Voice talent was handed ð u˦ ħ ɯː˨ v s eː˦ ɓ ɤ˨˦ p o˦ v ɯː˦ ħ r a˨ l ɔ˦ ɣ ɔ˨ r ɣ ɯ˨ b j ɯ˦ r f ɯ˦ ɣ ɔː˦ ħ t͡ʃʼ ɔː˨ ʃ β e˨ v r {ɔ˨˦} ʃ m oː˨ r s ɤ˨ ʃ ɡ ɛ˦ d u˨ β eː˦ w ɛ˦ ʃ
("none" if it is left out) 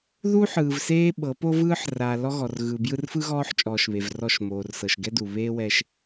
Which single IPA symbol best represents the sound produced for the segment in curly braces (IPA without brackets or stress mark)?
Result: ɔ˦˨